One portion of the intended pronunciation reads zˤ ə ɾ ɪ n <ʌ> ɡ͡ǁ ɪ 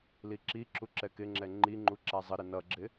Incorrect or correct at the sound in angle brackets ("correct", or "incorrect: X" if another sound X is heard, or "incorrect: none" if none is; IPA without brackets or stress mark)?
correct